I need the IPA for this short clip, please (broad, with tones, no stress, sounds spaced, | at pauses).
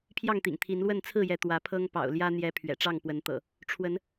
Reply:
pʰ j ɑ˥˨ ŋ t̪ ḭ˨˩ ŋ t̪ʰ i˨˦ n l w ə˥˨ n t͡sʰ ɹ̩˥˨ j ɛ˨˦ t̪ w ä˨˦ pʰ ɤ˦ ŋ p ɑ̰˨˩ ʊ̯ l j ä˦ n̪ j ɛ˨˦ pʰ ɥ ɛ̰˨˩ ʈ͡ʂ ɑ˥˨ ŋ p w ə˨˦ n t̪ ɤ̰˨˩ | ʈ͡ʂʰ w ə˨˦ n